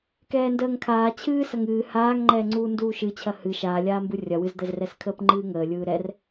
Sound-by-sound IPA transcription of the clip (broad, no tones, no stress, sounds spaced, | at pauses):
k ɛː n d əː ŋ kʰ aː t͡ɕʰ ɨː s ɐ ŋ ɨː h aː ŋ ŋ͡ǃ ɛː ŋ͡ǀ uː n d uː ʃ ɨ t͡ɕʰ ɐ h ɨ ʃ aː lʲ aː m b ɯ rʲ ɐ w ɨ z d̪ ɛ z r ɛ s kʰ əː p ŋ͡ǃ ɨː ŋ əː lʲ ɯː ɾ ɛ r